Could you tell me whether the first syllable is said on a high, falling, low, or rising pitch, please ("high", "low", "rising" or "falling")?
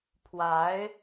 rising